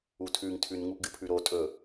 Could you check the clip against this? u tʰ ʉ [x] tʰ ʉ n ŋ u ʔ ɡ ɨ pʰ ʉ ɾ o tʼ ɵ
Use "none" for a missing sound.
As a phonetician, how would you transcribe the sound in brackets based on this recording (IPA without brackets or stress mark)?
ŋ